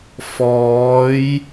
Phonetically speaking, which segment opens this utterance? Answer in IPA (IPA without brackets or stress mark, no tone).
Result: f